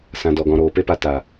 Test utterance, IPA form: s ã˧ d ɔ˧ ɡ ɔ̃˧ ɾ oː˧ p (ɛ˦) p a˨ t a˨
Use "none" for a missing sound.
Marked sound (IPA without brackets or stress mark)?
e˦